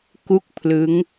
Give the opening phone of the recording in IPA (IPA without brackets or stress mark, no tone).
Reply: k